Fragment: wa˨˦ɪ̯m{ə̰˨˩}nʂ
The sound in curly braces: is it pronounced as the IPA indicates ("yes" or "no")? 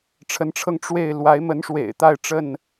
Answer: no